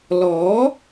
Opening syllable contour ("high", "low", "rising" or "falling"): rising